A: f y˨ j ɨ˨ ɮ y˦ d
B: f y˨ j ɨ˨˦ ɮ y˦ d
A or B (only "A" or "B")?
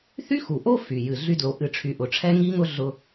A